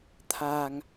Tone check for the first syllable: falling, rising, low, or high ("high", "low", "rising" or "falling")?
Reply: low